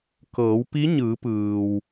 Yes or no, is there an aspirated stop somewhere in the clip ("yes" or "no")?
no